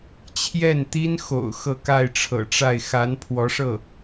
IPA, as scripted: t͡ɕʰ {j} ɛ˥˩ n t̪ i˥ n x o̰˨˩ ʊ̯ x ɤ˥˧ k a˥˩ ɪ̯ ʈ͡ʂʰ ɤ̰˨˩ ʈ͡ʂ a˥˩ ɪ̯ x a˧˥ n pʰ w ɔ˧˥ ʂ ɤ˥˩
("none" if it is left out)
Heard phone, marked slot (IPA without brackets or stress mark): j